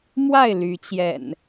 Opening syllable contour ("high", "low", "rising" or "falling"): falling